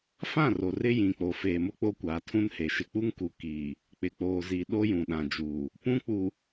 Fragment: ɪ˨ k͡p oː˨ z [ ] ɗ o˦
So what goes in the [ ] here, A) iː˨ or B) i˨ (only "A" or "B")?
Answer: B